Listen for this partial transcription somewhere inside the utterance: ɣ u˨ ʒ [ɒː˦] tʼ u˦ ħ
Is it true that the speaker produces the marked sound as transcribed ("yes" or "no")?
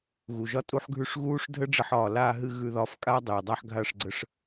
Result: no